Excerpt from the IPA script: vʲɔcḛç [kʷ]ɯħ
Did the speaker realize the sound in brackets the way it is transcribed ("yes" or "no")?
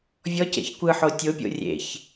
yes